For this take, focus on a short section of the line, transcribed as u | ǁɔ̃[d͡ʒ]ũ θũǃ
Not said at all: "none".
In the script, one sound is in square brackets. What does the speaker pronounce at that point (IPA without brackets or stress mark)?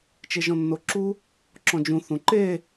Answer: d͡ʒ